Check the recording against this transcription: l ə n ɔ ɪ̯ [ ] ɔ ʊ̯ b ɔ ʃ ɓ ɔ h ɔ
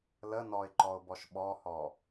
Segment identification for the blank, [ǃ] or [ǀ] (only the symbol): ǃ